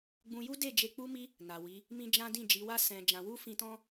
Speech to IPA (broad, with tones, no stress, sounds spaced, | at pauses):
ɡ͡b ũ˧ j u˦ d e˦˨ d͡ʒ e˧ k͡p u˧ m i˧ | n a˨ w i˨˦ | m ĩ˦ d͡ʒ ã˦ d ĩ˦˨ d͡ʒ i˨˦ w a˦ s ɛ̃˧ d͡ʒ ã˧ w u˦ f ĩ˧ t ɔ̃˦